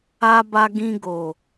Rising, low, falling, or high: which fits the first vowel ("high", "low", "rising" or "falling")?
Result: high